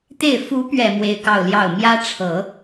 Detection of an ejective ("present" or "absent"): absent